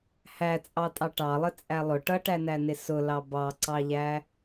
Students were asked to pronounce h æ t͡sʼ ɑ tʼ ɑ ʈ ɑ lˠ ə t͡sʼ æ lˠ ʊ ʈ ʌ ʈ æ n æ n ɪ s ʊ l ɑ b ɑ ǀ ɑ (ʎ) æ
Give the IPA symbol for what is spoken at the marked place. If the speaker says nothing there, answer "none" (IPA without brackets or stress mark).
ʎ